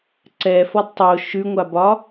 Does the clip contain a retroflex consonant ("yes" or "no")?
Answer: no